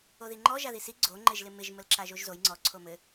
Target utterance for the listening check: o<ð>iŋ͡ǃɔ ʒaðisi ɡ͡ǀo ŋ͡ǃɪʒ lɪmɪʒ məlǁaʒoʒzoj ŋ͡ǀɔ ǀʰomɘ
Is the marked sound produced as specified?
yes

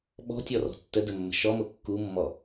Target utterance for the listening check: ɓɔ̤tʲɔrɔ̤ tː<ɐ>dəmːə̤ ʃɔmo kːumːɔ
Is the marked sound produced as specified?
no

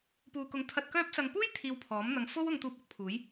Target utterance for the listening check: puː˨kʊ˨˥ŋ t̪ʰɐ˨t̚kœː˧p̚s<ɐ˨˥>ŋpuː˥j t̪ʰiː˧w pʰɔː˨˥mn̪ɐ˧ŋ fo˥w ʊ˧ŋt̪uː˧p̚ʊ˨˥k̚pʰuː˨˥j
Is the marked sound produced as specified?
no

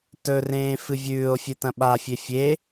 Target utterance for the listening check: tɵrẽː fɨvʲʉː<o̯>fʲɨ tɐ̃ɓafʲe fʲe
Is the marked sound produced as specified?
yes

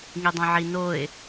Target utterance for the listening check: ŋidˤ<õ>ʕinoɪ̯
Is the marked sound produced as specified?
yes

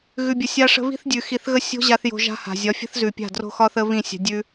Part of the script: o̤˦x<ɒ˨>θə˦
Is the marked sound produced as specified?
no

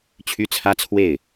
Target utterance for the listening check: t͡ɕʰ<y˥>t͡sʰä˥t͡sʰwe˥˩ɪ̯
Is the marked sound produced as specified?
yes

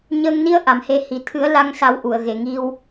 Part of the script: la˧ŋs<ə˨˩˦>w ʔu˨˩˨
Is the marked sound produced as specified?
no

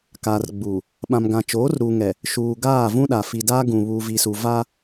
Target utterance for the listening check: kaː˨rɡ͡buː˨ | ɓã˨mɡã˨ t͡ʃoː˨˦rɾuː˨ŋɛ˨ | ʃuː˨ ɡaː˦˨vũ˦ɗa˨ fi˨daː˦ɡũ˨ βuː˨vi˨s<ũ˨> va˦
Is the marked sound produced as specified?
no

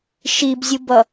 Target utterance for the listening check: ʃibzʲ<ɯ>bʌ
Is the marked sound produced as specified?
yes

